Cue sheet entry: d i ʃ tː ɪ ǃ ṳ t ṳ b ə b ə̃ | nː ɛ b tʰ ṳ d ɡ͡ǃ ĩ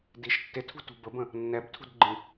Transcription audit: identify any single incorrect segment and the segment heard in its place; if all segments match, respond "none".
ǃ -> tʰ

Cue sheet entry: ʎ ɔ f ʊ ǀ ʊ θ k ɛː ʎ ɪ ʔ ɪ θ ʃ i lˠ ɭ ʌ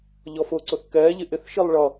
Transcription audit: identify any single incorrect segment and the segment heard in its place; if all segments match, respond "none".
none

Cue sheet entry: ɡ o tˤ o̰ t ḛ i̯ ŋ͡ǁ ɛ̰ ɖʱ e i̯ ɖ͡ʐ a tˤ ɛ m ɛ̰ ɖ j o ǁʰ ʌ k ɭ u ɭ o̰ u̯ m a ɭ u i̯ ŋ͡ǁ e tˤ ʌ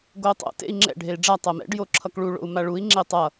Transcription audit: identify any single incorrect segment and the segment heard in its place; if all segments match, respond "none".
none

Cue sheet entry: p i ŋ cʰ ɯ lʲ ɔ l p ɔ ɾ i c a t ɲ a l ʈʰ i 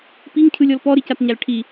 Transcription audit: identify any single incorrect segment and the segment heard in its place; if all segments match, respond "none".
none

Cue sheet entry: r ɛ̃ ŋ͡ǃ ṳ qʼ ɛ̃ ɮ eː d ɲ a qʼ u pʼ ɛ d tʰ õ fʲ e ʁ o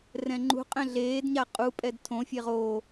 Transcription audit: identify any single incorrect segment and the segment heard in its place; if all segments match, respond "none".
none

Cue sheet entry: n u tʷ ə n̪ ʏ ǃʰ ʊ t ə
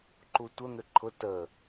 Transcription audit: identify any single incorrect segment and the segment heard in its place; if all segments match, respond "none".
n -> ǃ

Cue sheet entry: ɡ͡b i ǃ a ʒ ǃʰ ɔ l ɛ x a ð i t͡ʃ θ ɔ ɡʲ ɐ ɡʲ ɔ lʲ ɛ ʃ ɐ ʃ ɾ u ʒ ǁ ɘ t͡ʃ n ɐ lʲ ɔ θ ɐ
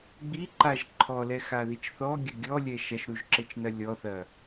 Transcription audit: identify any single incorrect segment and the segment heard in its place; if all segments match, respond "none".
none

